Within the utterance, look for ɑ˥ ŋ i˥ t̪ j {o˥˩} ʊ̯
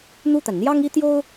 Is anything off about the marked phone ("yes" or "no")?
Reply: yes